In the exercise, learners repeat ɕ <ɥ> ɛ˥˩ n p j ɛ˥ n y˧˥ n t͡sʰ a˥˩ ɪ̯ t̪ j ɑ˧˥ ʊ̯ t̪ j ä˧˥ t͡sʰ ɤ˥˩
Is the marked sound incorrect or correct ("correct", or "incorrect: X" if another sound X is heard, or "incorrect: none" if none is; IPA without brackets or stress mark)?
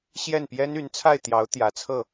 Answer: incorrect: j